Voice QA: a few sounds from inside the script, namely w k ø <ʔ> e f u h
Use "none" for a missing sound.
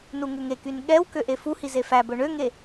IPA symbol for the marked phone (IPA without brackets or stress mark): ʔ